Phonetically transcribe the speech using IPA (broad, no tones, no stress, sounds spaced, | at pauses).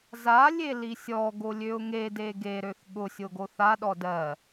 z a lʲ e l i sʲ ɔ ɡ o lʲ ø ʊ̯ ŋ e d e ɡ e ɾ ø θ ɠ ʊ sʲ o ɡ o θ a ɗ ɔ d ɜ